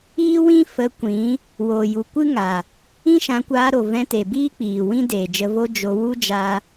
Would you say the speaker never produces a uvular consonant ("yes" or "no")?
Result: yes